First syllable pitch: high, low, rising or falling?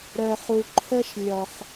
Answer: low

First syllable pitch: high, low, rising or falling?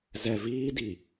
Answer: low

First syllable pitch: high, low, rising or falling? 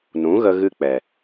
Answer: rising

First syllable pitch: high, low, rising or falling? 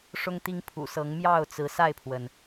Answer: high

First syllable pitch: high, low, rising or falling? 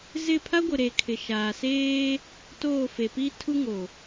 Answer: falling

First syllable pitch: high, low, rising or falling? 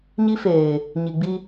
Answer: high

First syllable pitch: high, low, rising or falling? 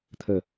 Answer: falling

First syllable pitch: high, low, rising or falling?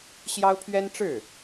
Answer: high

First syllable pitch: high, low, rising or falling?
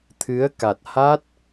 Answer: rising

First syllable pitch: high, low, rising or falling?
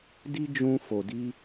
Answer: high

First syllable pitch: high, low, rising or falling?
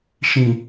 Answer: low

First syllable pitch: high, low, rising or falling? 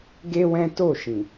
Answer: high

